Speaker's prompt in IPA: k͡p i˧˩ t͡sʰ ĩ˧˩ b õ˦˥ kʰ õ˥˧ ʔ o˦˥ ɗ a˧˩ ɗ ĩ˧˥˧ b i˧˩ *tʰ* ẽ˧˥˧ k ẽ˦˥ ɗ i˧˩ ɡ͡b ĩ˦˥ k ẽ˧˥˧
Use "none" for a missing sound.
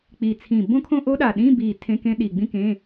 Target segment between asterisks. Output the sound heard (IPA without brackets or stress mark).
tʰ